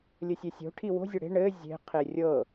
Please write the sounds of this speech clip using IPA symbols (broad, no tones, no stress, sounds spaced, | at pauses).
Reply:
lʲ ɘ sʲ e sʲ o̤ ʈʰ i w o̤ zʲ ɤ ɽ e̤ ɳ ɘ zʲ e̤ qʰ e rʲ ɤ